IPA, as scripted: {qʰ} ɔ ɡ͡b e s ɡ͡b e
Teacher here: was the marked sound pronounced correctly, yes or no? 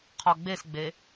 yes